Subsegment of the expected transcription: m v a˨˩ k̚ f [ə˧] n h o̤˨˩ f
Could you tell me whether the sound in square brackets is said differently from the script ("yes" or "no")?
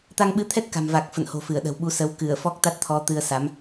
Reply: yes